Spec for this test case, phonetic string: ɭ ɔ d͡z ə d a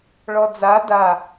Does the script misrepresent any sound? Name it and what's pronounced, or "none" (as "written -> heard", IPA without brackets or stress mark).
ə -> a